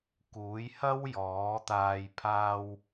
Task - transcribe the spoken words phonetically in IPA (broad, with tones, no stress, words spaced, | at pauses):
kuː˨˥jhɐ˥wjɔː˨˥t̪aː˧j pʰaː˧w